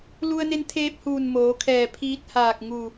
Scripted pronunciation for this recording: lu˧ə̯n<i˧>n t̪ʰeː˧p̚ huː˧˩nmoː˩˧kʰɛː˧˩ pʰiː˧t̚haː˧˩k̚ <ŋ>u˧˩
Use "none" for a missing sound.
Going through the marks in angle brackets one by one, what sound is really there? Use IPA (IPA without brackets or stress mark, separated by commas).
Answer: e˧, ŋ